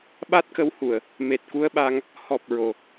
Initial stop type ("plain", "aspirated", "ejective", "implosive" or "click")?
implosive